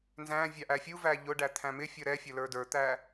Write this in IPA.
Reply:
n z æ̃ vʲ ɑ ʔ æ fʲ u v æ ʎ ʊ ɖ æ t̪ʰ æ̃ m ɪ fʲ ʌ ɾ ɛ fʲ ʌ l ə˞ d ə˞ t̪ æ

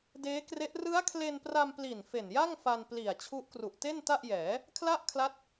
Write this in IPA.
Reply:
d eː˦˥ k r e˦˥ ʔ r ɯ˦˥ a̯ kʰ l e˧ n p r a˧ m p l i˨˩ n f e˨˩ n j a˥˩ ŋ f a˧ n p l i˨˩ a̯ t͡ɕʰ u˦˥ ʔ k r u˨˩ ʔ t e˥˩ n t a˥˩ ʔ j ɛː˩˦ | kʰ l a˥˩ ʔ kʰ l a˦˥ t̚

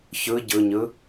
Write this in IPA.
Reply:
ç ɯ ɟ ɯ ɲ ɯ

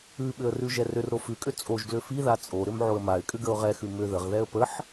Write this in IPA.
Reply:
ʉ ɓ ʏ ə̯ r ʉ ʒ ɛ r ʏ r ɾ o f ʉ kʼ ʏ t͡sʼ o ʒ ɡ l ʏ f i ð a t͡sʼ o ɾ ʏ m ʕ o ə̯ m a ɪ̯ kʼ ʏ ɡ ə ʊ̯ ʁ ɛ x ʉ m ʏ ð ə ʁ ð ɛ ə̯ p ə ħ

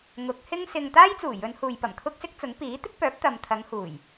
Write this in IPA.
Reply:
ŋ ʊ˨˥ k̚ h ɪ˥ ŋ s ɪ˧ ŋ t̪ aː˥ j t͡s uː˨˩ j ɵ˨˧ n h uː˨ j p ɐ˨˩ m kʰ ʊ˥ k̚ s ɪ˥ k̚ t͡s ʊ˨˥ ŋ p iː˨˥ t̪ ɪ˥ k̚ p œː˨˥ p̚ t̪ ɐ˨ m t̪ʰ ɐ˨˧ ŋ h uː˨˩ j

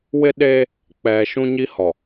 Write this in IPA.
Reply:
w ɪ˦ ɗ e˦ | k͡p ɛ˨ ʃ ũ˦ ɲ i˦ h ɔ˨

